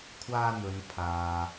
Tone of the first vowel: high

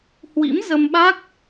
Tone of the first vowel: rising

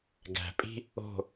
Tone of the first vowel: low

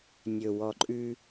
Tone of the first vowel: low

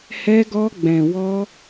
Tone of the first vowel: high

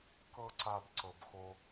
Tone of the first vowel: high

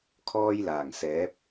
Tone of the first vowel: high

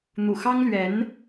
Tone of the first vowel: low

